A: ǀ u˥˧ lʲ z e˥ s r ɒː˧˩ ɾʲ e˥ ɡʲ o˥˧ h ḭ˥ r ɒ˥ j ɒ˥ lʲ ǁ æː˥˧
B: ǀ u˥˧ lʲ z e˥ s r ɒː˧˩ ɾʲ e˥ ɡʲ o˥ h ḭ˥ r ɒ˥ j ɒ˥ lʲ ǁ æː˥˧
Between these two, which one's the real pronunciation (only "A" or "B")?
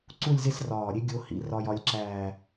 B